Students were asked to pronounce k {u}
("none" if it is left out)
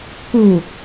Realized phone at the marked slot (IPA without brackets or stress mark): u